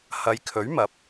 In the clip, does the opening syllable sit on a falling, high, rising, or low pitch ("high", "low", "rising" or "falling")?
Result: low